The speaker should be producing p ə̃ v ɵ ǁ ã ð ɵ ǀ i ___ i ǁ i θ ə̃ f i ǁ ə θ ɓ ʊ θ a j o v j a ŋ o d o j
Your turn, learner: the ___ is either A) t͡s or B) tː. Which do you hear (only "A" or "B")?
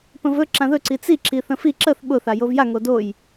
A